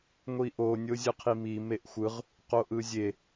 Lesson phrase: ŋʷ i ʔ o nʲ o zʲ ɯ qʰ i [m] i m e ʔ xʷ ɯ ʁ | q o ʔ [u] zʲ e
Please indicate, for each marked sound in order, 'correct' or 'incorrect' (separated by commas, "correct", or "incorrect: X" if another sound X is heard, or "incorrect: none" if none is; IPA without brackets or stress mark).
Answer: correct, incorrect: ɯ